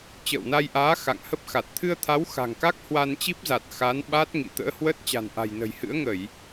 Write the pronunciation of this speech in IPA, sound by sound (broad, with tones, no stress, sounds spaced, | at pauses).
t͡ɕ ə̰ː˧˨ w n a˧ j ʔ aː˨˦ x a̰˧˨ ŋ h ə˦˥ p̚ x a˨˩ t̚ t̪ʰ ɨ˧ ə̯ t̪ʰ a˨˦ w x a̤˨˩ ŋ k a˦˥ k̚ h w a˧ n t͡ɕ i˦˥ p̚ z a˨˩ t̚ x a˨˦ n ɓ a˦˥ t̚ ŋ ḭ˧˨ t̪ ə̰ː˧˥ h w ə˦˥ t̚ t͡ɕ a̤˨˩ n ʔ a̤˨˩ j n ə̤˨˩ j h ɨ̰˧˥ ə̯ ŋ ə˧˩˨ j